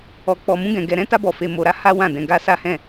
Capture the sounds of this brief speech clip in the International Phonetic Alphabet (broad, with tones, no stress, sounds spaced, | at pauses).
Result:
ɔ˧ k͡p ɔ˧ m ũ˦ ɡ ɛ̃˧ ɡ ɛ˧ ɾ ɛ̃˦ t a˦ b ɔ˧ f e˧ m o˧ ɾ a˦ h a˦ w ã˦˨ d ɛ̃˧ ɡ a˦ s a˦ h ɛ̃˦˨